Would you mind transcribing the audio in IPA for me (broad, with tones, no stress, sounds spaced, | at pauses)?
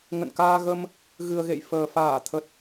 ŋ ə̰˧˨ n k aː˧ ɣ ə˧ m | ɣ ɨ˨˩ ə̯ ɣ ḛ˧˨ j f əː˨˩ f aː˧˩ t̪ʰ ə˨˩ t̚